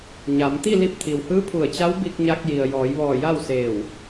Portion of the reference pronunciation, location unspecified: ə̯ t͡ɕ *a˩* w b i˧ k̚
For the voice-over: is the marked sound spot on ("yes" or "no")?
no